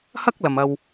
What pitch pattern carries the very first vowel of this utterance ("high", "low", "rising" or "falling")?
high